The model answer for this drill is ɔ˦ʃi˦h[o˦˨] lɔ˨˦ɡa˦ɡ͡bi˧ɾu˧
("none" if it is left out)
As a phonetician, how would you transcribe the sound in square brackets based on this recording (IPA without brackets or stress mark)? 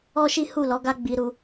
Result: u˦˨